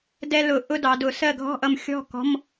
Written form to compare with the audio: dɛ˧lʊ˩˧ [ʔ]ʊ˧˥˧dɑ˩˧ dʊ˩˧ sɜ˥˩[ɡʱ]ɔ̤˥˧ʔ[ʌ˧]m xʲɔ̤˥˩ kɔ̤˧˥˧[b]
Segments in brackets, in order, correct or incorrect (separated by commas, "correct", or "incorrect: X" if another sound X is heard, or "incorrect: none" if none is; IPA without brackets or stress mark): correct, correct, correct, incorrect: m